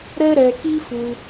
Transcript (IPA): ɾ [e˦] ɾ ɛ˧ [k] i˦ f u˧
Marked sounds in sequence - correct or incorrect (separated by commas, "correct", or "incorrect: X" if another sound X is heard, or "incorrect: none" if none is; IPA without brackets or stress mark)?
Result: incorrect: ɛ˦, correct